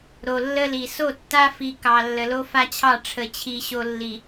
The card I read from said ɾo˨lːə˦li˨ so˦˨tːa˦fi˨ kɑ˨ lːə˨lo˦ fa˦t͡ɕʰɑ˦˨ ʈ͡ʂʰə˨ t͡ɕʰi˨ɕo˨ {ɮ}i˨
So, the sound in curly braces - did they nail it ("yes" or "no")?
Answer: no